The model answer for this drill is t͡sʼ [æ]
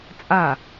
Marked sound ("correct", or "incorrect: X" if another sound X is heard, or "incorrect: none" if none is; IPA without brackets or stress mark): incorrect: a